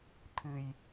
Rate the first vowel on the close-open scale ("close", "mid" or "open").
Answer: close